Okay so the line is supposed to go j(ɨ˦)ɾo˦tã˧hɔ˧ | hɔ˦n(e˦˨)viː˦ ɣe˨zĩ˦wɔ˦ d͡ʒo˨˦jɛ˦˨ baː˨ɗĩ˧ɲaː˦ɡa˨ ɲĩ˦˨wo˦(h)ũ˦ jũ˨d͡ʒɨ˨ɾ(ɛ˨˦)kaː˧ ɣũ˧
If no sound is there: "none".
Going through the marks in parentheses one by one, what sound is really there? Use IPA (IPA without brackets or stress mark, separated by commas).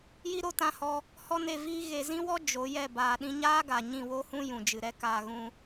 i˦, e˦˨, h, ɛ˦